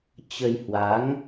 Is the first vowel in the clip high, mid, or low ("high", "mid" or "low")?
mid